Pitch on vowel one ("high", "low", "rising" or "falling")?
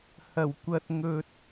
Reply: low